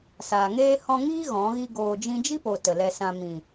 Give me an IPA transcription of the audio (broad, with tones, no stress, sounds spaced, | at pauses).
s aː˨ ŋ eː˦ h ɔ̃˧ ŋ iː˦ ɣ ɔ̃˨˦ ɣ i˦ ɡ oː˧ d͡ʒ ĩ˦ d͡ʒ i˦ p o˨ t ə˨ l ɛ˧ s ã˧ m ĩ˨